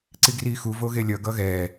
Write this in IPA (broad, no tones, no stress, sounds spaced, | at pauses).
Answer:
ǀ i ɡ r iː x u v o ɣ e lʲ ʌ ɡ ʌ ɣ ɛː